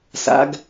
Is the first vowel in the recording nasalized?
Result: no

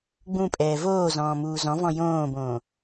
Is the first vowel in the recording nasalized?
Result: yes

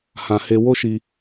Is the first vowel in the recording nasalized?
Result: yes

